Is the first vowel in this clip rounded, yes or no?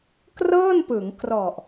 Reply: no